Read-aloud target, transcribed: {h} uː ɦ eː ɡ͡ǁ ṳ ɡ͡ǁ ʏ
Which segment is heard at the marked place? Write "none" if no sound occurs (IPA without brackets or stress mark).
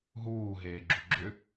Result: ɦ